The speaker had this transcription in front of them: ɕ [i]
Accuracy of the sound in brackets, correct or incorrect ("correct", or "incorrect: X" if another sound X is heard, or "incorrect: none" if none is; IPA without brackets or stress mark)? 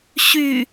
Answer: incorrect: y